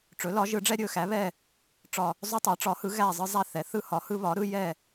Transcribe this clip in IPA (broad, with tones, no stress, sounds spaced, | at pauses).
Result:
ʈ͡ʂ ɵ˩˥ l ɒ˩˥ ʒ ɯ˩˥ ɖ͡ʐ ɛ˦ ɾʲ ɵ˦˨ x æ˩˥ β ɛ˦˨ | ʈ͡ʂ ɒ˦˨ | zˤ ɵ˦ tˤ æ˩˥ ʈ͡ʂ ɒ˩˥ h ɯ˩˥ ɣ æ˦˨ zˤ ɯ˦ zˤ æ˦˨ θ ɛ˩˥ θ ɯ˦ h ɒ˩˥ h ɯ˦ β ɒ˩˥ ɾ ɯ˦ j ɛ˦˨